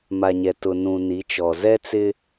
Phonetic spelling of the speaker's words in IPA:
m a˨ ɲ ɛ˨ t ʊ˨ n ũ˨ n i˨˦ t͡ʃ ɔ˨ z ɛ˦ t͡s ɪ˦

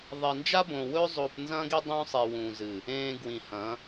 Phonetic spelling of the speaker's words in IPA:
ðˤ i˨ n d͡ʒ a˦ b õ˨ w ɵː˦ zˤ o˦ p n z ɐ̃ː˦ ɡ i˦ dˤ ũː˦ sˤ e˨ w ũː˨ z ɨ˨ | ẽː˨ ɡ w ĩ˨ h ɐ̃˨˦

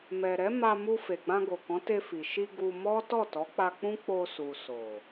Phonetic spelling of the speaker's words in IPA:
m ɛ˨ ɾ ɛ˨˦ m a˧ m u˧ f e˨ ɡ͡b ã˧ ɡ o˨ k ɔ̃˨˦ t e˧ f i˨ ʃ i˧ ɡ u˧ m ɔ˦ t ɔ˦˨ t ɔ˨˦ k͡p a˧ k͡p ũ˦ k͡p o˧ s u˨ s o˨

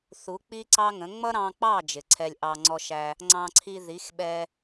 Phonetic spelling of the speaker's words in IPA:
θ u˨˦ k͡p i˦ ǀ ɑ˦ ŋ ə̃˨˦ ŋ͡m ʌ˦ ɾ ɑ̃˧ k͡p ɑ˦˨ d͡ʒ ɪ˨ ǀʰ ɛ˧ lʲ ʔ ɑ˧ ŋ͡ǀ ɔ˧ ʃ æ˧ | ŋ͡ǀ ɑ̃˧ ǀʰ i˧ ð i˨˦ x ɓ ɛ˧

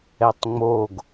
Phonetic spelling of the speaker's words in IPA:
ɛ tˤ ŋ͡m o ɡ

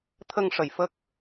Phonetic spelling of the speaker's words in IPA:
t̪ʰ ə˧ ŋ ʂ ə˨˩ j f ə˦˥ k̚

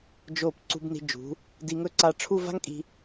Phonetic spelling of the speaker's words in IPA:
d͡ʒ o˧˩ p ǀ ṳ˧ b n i̤˧ d͡ʒ ṳ˩˧ | d i˧ ŋ ɵ˥˧ ǀ a˧ ʈ͡ʂʰ u˥˧ v a̤˥ ŋ kʼ i̤˧

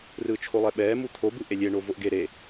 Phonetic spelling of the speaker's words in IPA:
r ɯː t͡ʃʰ o lˠ ɛ ɓ ɛː m u t̪ʰ o b ɯ ʔ e lʲ e ɳ o v o ʔ ɡ e ɾ e

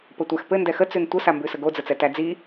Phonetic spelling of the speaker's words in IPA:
p ə tʷ æ x p ɘ n d ɛ x ə t͡s ʉ n tʷ ə s a m b ʉ s ə ɡ o d͡z ə t͡s ɛ t æ d͡z i

